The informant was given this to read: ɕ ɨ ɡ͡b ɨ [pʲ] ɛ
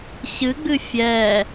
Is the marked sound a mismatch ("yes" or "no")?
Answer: yes